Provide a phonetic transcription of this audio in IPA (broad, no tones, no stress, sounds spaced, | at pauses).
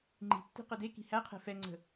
ŋ͡ǃ i̤ tː i̤ q ə d e k i̤ h æ qʰ ɛ̤ f ɛ ŋ͡ǀ ə̤